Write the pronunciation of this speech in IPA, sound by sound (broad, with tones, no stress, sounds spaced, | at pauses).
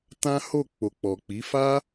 t ã˦ h o˦˨ k͡p o˨ k͡p ɔ˨ k͡p i˨˦ f a˦